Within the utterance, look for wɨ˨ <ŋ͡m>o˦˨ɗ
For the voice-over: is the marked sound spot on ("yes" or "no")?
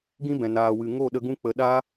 no